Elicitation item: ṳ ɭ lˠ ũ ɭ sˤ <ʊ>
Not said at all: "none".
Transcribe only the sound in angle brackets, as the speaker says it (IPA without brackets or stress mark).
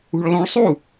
u